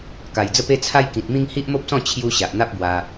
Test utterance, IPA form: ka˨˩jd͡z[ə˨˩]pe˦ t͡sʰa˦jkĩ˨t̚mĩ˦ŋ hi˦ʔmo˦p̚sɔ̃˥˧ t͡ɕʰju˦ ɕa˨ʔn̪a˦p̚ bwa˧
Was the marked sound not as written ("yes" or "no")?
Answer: yes